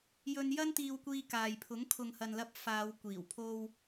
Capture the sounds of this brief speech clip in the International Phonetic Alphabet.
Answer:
j ɵ˧ n j ɐ˥ n t̪ iː˧ w kʷ iː˧ k aː˨ j pʰ ʊ˨˥ ŋ kʰ ʊ˨ ŋ h ɐ˨ n l ɐ˧ p̚ f aː˨˧ w kʷ iː˨˩ w pʰ o˧ w

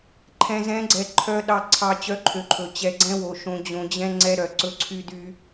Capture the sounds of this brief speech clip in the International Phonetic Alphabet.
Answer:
ǃʰ ɛ̃˨ z ɛ̃˨˦ ɡ͡ǀ ɛ˨ ǃʰ œ˨ ɗ ɑ˨ ǀʰ ɑ˨ t͡ɕ œ˨˦ ǃʰ ø˨ ǃʰ ɵ˨ t͡ɕ ɛ˨ ɡ͡ǀ ɛ̃˦ w o˨ ʃ õ˨ d͡ʑ õ˨ d͡ʑ ɛ̃˦ ŋ͡ǀ ɛ˦ ɾ œ˨ ǀ ɵ˦ ǀʰ y˦ d y˦

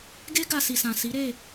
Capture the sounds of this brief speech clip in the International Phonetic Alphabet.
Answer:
ɡ e˦ ɡ a˧ s i˨ s ã˨ s i˨˦ ɾ e˦˨

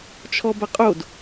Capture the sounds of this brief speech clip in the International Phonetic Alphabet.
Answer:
t͡ʃʰ ɔ b ɐ qʼ o d

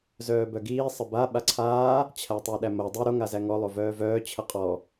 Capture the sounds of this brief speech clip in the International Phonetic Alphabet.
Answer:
z œː b œ ɡ iː sˤ ə b a ɓ a ǀʰ aː | t͡ɕʰ æ tˤ o ɗ æ m o dˤ i ɾ o ŋ a z æ ŋ ɔ lˠ o v œː v œː t͡ɕʰ ə qʼ ɔ

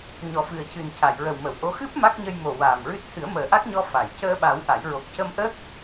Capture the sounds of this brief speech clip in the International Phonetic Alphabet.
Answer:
ɲ ɔ˨˩ f ɨ˨˩ ə̯ c ɨ˨˩ n c a˨˩˨ j ɹ ə˨˩ w m ə˨˩˨ w ʔ o˧˥ x ɨ˦˥ p̚ m a˦˥ k̚ ɲ ə˧ j m o˨˩ w aː˨˩ m ɹ ɨ˦˥ t̚ h ɨ˨˩˦ ə̯ m əː˨˩ ʔ a˦˥ k̚ ɲ ɔ˧ f a˨˩˨ j c əː˧ ɓ a˨˩˦ w ʔ a˨˩˦ j ɹ o˨˩ k̚ c ə˧ m ʔ əː˦˥ k̚

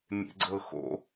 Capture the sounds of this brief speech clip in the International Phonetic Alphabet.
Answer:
mʲ ḛ ɡ͡ǀ ɤ x o̰

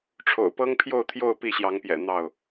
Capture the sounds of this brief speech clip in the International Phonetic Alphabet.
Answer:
ʈ͡ʂʰ o̰˨˩ ʊ̯ p ɤ˦ ŋ pʰ j o˥˨ ʊ̯ t̪ʰ j o˥˨ ʊ̯ p i˥˨ ɕ j ɑ˨˦ ŋ p j ɛ̰˨˩ n̪ ɑ˥˨ ʊ̯

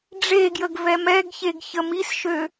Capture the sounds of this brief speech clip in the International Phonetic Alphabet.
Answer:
ɖ͡ʐ e ɡ j ə ɡ v ɛ m ɛ ɡ ç e ɡ ç ə m i s ʃ ø

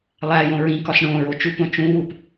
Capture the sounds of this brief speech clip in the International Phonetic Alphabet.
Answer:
lˠ æ j õ ɹ ĩ k ɒ s ɳ õ ɹ o t͡ʃ u p õ t͡ʃ ũ w u p

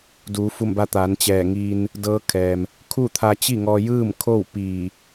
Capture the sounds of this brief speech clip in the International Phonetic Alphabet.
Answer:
d uː˩˧ f u˧˩ m b a˧ t̪ aː˩˧ n t͡ɕ ɛː˧˩ ŋ iː˧ n | d ɤː˧˥ kʰ ɛː˩ m | kʰ u˥˨ t̪ʰ a˧ t͡ɕ i˥˨ ŋ ɔː˧ j ɯː˥˨ m kʰ o˥˨ w p iː˧˩

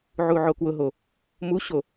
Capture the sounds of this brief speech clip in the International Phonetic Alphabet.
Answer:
ʕ u ʕ o k w ʊ ɦ o | m u ɕ o

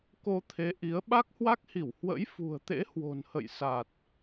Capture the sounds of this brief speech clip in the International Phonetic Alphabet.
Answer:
k o˧ t̪ʰ e˨˦ ʔ i˨˦ ə̯ ɓ a˦˥ k̚ h w a˦˥ k̚ h i˧˩ w h w ə̰˧˥ j f ṳ˨˩ ə̯ t̪ ḛ˧˥ h w o̤˨˩ n h ə̰˧˨ j s a˨˩ t̚

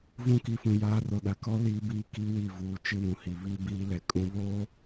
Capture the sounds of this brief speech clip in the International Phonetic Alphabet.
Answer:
v ũ˦ k i˨˦ f ũ˨ j aː˦ r o˨ ɗ a˨ k ɔ˦ l iː˦ b iː˦ k i˦ w i˦˨ v uː˨ t͡ʃ ɪ˦ w ũ˨ h i˨ β i˦ b iː˦ l ɛ˨ kʼ ũ˦ β oː˦

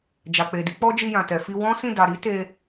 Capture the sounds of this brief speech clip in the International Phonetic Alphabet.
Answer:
d͡ʒ a˨ k͡p e˨ d i˨˦ k͡p ɔ˦ d͡ʒ i˧ j ã˨ t ɛ˨ f i˧ w ɔ̃˦ s ĩ˦˨ d a˨ ɾ i˨˦ t e˧

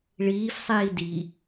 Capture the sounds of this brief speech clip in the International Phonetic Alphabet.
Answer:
ɭ iː f sˤ iː d i

